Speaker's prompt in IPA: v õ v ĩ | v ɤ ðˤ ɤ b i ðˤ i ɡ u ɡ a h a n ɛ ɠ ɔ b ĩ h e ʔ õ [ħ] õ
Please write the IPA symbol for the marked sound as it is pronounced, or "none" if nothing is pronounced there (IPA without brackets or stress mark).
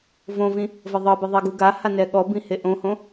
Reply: h